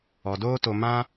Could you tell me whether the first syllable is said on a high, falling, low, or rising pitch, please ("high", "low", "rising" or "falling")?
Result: low